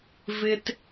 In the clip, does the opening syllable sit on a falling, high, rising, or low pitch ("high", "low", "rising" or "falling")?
low